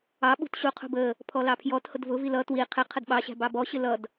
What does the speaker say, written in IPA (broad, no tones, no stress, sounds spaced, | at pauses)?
ɑ ɓ ṳ t ɕ u qʰ ṳ b ə | pʰ ɔ l ɑ pʰ j ɔ t h ʊ d v ʊ v i l ʌ t w i qʰ ɪ qʰ ə d ɓ ɑ ɕ æ̤ b ɑ b ɔ ɕ ɪ l ʌ d